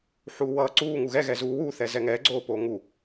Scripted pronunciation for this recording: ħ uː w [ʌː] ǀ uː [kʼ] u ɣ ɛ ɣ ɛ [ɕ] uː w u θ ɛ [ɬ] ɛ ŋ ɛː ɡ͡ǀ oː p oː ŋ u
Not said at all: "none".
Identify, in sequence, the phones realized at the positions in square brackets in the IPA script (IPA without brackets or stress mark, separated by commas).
ʌː, ŋ, z, z